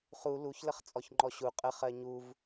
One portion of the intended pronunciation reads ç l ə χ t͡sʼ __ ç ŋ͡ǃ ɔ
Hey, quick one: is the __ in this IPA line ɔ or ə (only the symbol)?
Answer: ɔ